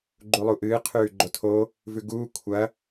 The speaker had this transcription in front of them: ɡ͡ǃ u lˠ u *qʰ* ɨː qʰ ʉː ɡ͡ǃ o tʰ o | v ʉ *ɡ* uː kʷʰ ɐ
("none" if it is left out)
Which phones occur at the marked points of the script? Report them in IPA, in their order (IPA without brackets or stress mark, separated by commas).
ʔ, ɡ